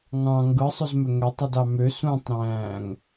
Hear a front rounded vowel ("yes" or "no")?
yes